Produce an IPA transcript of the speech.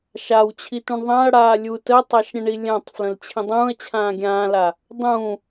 ʃ a w t͡ɕʰ i t ũ ɳ ðˤ ã ɐ̯ ɽ aː lʲ u t ə tˤ a ʃ ɾʲ ə̃ ɳ i lʲ ã tˤ f l ə̃ l t͡ɕʰ ĩ dˤ ũː ɐ̯ t͡ɕʰ ãː ɡʲ ãː l a | dˤ ũː

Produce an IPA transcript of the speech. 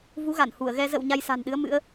v u˨˦ ɣ a˧˩ n h u˧˩ ə̯ ɣ ɛ˧ z ə̰˧˨ w ɲ a˧ j s a̤˨˩ n ɗ ɨ˨˦ ə̯ m ɨ̰˧˥ ə̯

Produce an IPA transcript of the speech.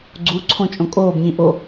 ɡ͡ǀ u ǀʰ õ t͡ʃʼ õ kʼ oː b ɲ ĩ ʔ o

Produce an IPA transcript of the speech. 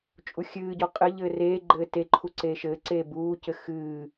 t͡ʃʼ u xʲ ɨː ɟ ɔ qʼ ɘ ʎ ɘː r eː ɡ͡ǃ ɘː t e ǃʰ u ǀ eː ʃ ɘː ǀ eː b uː c ɘ x ɨː

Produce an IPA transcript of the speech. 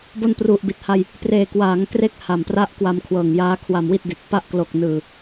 b o˧ n p r u˨˩ ʔ b i˨˩ t̚ h a˧ j | p r eː˨˩ k w aː˩˦ ŋ k r e˦˥ k̚ h a˨˩ m p r a˥˩ ʔ k w a˧ m kʰ w ɤː˨˩ ŋ j aː˦˥ kʰ w a˧ m w i˥˩ t̚ d i˨˩ t̚ p a˦˥ ʔ k l o˨˩ k̚ n ɯː˨˩

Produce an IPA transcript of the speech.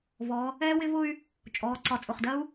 v ɔ˩˧ | ɛː˥ w ɪ˥ v ʊ˥ y̯ | t͡ʃʼ ɔː˩˧ ǀ ɒ˨˩ t͡sʼ ʊ˨˩ χ d ɜ˥ u̯

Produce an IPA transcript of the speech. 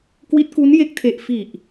k w i˦˥ t̚ k u˦˥ n j e˦˥ k̚ tʰ e˨˩ ʔ f i˨˩ ʔ

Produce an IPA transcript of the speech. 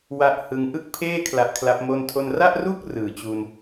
w a˦˥ ʔ h ɯ˧ ŋ ʔ ɯ˥˩ k̚ pʰ eː˥˩ kʰ l a˦˥ ʔ kʰ l a˦˥ p̚ m o˥˩ n tʰ o˥˩ n r a˥˩ ʔ r u˥˩ k̚ r ɯː˨˩ t͡ɕ u˧ n

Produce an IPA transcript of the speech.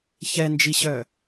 ç ɛ n d͡ʒ i ɕ œ

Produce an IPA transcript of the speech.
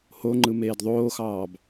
h o ŋ͡ǃ ɯ m eː d ðˤ oː x ɑː b

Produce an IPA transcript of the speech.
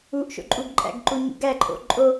u ʔ ʃ o̰ ǃʼ u ɡ ǃʼ æ̰ ɡ ǃ u ɲ ṵ ɡ æ ǃʼ o̰ ǃʼ o

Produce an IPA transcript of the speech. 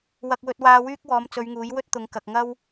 w ɐ˧ k̚ w ɵ˧ t̚ w aː˧ w yː˥ k̚ w ɔː˨˧ m t͡s ɵ˨˧ ɥ ŋ uː˨˥ j w ɵ˥ t̚ t̪ ʊ˨˧ ŋ k ɐ˨ k̚ ŋ ɐ˥ w

